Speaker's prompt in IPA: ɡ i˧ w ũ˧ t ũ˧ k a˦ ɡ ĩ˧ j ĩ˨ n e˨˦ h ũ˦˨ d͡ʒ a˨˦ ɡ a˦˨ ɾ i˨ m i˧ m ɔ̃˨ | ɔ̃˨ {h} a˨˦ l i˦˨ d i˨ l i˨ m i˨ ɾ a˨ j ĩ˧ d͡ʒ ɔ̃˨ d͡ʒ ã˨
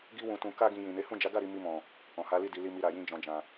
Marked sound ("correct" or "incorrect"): correct